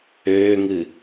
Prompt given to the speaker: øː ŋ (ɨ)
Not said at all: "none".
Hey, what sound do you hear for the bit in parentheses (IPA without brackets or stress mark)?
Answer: ɨ